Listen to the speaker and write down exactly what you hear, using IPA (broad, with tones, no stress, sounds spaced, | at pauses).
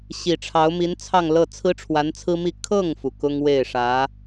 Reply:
ɕ i˨˩ ʈ͡ʂʰ ɑ˧˥ ʊ̯ m i˧˥ n t͡sʰ ɑ˥˧ ŋ l ɤ˥˩ t͡sʰ ɹ̩˥ ʈ͡ʂʰ w a˧˥ n t͡sʰ ɹ̩˥ m i˥˧ kʰ ɤ˥˩ ŋ f u˩ k ʊ˥ ŋ w e˥˩ ɪ̯ ʂ ä˧˥